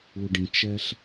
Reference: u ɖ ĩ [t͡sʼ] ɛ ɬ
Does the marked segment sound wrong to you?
yes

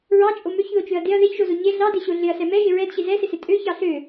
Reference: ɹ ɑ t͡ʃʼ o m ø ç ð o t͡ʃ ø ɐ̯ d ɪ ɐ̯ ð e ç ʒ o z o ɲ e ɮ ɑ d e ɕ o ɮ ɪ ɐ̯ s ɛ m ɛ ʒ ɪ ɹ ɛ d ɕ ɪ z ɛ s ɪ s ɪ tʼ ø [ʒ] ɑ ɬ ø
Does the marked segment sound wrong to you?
yes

